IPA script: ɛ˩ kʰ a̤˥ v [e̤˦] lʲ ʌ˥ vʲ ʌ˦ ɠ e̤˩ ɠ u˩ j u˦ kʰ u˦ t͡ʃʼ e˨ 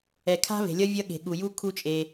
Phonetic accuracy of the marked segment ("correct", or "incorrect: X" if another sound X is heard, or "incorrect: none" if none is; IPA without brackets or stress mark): incorrect: e̤˩